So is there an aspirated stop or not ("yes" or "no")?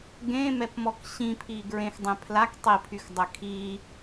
yes